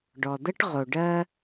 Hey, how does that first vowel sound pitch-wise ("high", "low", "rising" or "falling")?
low